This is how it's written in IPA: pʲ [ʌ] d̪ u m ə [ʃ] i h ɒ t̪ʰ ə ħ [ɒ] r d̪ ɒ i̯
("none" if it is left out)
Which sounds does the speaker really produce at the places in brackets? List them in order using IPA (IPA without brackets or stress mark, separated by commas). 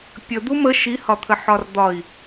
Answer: ə, ʃ, ɒ